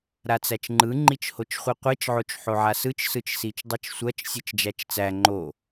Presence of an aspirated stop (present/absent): absent